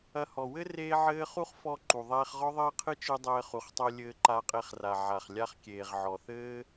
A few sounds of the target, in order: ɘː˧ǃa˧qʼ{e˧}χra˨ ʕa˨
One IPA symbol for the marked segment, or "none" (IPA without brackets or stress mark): e˧